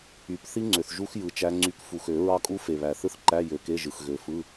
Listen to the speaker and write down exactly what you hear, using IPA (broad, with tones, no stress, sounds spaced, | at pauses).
y˨˩˦ p θ i˦˥ ŋ͡ǀ ø˨˩ θ ʒ u˦˥ x j ɯ˨˩ t͡ʃ æ˦˥ ŋ͡ǀ y˦˥ k f u˨˩ x ø˨˩˦ ɹ ɑ˦˥ kʼ u˦˥ f e˨˩ β æ˨˩ θ ɯ˦˥ θ ǃ æ˧˥˧ j ø˨˩ k e˧˥˧ ʒ ɯ˨˩ x ɣ ø˨˩ f ɯ˧˥˧